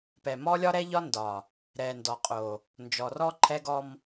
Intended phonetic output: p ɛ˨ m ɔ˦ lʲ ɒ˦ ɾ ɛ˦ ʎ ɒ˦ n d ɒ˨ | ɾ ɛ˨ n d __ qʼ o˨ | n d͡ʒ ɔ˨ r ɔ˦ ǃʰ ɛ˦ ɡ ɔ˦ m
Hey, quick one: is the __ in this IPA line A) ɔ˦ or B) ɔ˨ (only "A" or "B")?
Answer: B